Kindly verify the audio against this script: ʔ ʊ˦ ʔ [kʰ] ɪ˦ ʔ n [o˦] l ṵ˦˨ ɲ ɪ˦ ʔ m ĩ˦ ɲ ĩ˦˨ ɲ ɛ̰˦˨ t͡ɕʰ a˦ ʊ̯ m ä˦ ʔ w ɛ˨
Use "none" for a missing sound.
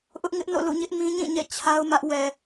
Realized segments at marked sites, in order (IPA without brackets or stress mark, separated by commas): ŋ, o̰˦˨